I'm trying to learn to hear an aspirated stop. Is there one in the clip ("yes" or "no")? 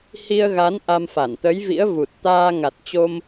no